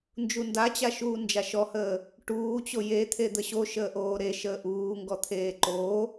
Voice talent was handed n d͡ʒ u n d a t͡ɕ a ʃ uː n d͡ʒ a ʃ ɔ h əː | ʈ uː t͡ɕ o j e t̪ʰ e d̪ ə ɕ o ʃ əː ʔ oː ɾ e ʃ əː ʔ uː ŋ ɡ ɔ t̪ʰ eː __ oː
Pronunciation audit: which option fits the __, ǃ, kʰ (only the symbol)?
ǃ